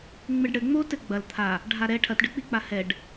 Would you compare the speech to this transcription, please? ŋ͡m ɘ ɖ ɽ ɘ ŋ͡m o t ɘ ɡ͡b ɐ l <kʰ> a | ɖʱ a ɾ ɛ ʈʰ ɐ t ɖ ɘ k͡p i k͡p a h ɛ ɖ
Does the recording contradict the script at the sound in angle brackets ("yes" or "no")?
yes